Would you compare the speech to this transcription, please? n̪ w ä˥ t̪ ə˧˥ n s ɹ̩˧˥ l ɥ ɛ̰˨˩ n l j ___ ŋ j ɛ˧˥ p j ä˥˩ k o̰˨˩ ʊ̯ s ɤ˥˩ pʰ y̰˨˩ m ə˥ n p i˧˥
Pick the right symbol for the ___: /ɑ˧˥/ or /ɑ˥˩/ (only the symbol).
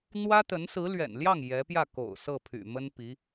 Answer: ɑ˥˩